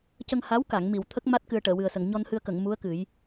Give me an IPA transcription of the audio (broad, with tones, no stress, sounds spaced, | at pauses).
c ə˧ ŋ h a˧˥ w k a˨˩˨ ŋ m i˨˩˨ w t̪ʰ ə˦˥ k̚ m a˦˥ t̚ k ɨ˧ ə̯ ʈ əː˨˩˨ w ɨ˨˩ ə̯ s ə˨˩˨ ŋ ɲ ɔ˧ n h ɨ˧ ə̯ k ə˨˩˨ ŋ m u˧˥ ə̯ k ɨ˨˩˦ j